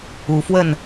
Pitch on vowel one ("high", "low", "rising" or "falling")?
rising